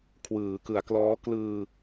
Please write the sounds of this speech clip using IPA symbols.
kʰ w ɯː˩˦ k ɯ˩˦ a̯ k l ɔː˦˥ k l ɯː˧

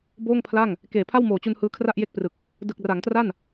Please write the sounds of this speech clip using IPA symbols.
b oː˥˩ ŋ pʰ l a˥˩ ŋ | k eː˨˩ pʰ a˥˩ w m oː˨˩ t͡ɕ u˧ n h ɯː˦˥ kʰ r a˥˩ ʔ j e˥˩ k̚ p r ɯ˨˩ k̚ | d ɯ˨˩ k̚ r a˩˦ ŋ t r a˥˩ n

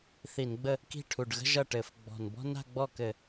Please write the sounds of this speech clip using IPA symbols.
θ i˧˩˧ n ɡ͡b ə˥˧ | k i̤˥˩ ʈʰ u˨˩ ɖ ɣ ə̤˥ ʒ ʌ˥˩ ʈ ɘ˧˩˧ f ɡ͡b ɔ̤˨˩ n b ɔ̤˥ n a̤˥˧ ɡ͡b ɔ˥˩ k ɘ˧˩˧

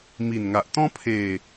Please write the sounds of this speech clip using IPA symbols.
m i˨˩ n ŋ a˨ ʔ t̪ ɔ̃˦ pʰ e˨˩

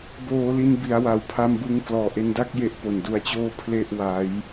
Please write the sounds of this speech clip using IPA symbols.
b oː˩˦ l i˧ n b i˩˦ a̯ w a˩˦ w pʰ a˧ m b ɯ˧ ŋ k l ɔː˨˩ ʔ e˧ n d a˥˩ k̚ j e˦˥ ʔ p o˨˩ n d u˧ a̯ t͡ɕ oː˥˩ pʰ l e˥˩ ʔ w a˦˥ j

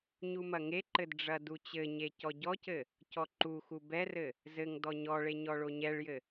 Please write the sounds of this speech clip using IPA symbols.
ɲ u m ɐ ŋ e ǃ ɘ d ɖ͡ʐ ɐ d u t͡ɕ ɘ ɲ e c ɔ ɟ ɔ c ɘ | c ɔ ǃ u x u b ɛ r ɘ | z ɘ ŋ d ɔ ɲ ɔ ɭ e ɲ ɔ ɭ o ɲ ɛ ɭ j ɘ

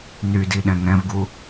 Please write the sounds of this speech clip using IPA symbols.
n y d i ɗ ɛ̃ ŋ ɛ̃ v ɡ u

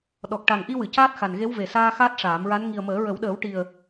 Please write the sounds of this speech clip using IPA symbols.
ɗ ɔ˨˩ k̚ ʈ a˨˩ ŋ ʔ i˧ w ɨ˨˩˨ c aː˦˥ t̚ x a˨˩ n ɣ e˧˥ w v e˨˩ s aː˧ x aː˦˥ t̚ ʂ aː˨˩˦ m ɹ a˧˥ n ŋ i˨˩ ə̯ m əː˨˩˦ ɹ ə˨˩˦ w ɗ əː˨˩˦ w ʈ i˨˩ ə̯

